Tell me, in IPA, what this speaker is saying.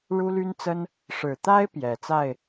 ɻu˥ly˥nt͡sə˥n | ʂɻ̩˨˩t̪a˥ɪ̯ pjɛ˨˩ t͡sa˥˩ɪ̯

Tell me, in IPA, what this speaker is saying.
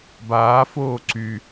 baːfoː ǀy

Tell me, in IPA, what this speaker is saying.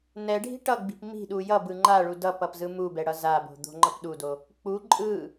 nɛɖʱi̤ ʈʌɡ͡bi̤p mi̤ɗu jʌbɯ ŋ͡ǃaɭu dʌpʌpzɯ mubɛɽʌ zabo̤d̪o̤ŋ͡ǃʌp ɗudo | k͡pu ǃʼɯ

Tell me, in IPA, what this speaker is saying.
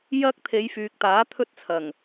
jɐ˥k̚ t̪ʰe˨˧jfyː˨k̚ t̪aː˨˥t̪ʰɵ˥t̚t͡sʰɐ˨˩ŋ

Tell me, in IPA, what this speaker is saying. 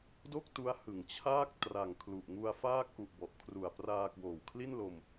do˥˩k̚tu˦˥a̯ hɯ˨˩ŋt͡ɕʰaː˥˩k̚ tra˨˩ŋ kʰlu˨˩ʔŋu˧a̯faː˥˩k̚ ʔu˨˩ʔbɔ˨˩ʔkʰru˨˩a̯ praː˧kwoː˨˩wkʰli˥˩nlo˧m

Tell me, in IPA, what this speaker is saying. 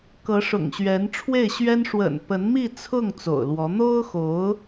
kɤ˧˥ʂʊ̰˨˩ŋɕɥɛ˧˥n ʈ͡ʂʰwe˥˩ɪ̯ɕɥɛ˥n ʂwə̰˨˩npə˧˥nmi˥˧t͡sʰʊ˥˩ŋ t͡so̰˨˩ʊ̯lwɔ˧˥ n̪o˥ʊ̯xo˧˥ʊ̯

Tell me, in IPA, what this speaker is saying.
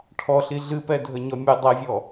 ʈʰɔɬi ɮɨpɛdʱəɲɔ mʲə dˤɛvʲɔ

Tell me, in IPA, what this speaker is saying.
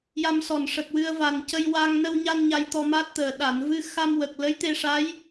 ja˧msɔ˨˩nʂə˨˩k̚ wɨ˧ə̯va˨˩n cə˧jwa˧ŋ nə˧wɲa˧n ɲa˧jt̪ɔ˧ma˦˥t̚t̪əː˨˩˨ ɗa˨˩˨nvɨ˧ xa˧mwə˨˩k̚ lə˧˥jt̪e˧ʂa˧˥j

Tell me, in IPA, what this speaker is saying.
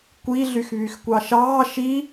kʷiɮyx βyxkʷɑʃɑː ʃi

